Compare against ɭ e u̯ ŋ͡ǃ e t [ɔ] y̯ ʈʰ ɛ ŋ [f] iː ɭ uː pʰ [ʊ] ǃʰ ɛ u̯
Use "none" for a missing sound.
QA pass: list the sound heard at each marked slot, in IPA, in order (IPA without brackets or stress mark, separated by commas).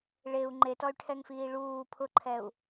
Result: ɔ, f, ʊ